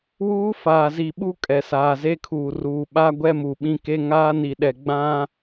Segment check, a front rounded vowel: absent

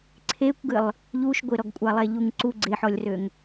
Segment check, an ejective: present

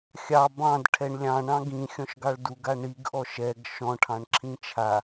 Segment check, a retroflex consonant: present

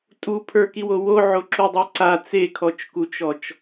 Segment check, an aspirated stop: present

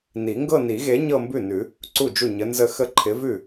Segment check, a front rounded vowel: absent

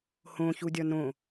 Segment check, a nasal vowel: present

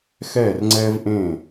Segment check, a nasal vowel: present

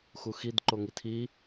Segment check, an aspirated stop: present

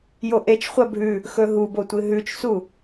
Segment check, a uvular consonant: present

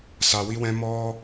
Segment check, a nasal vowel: present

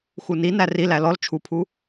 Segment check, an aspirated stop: present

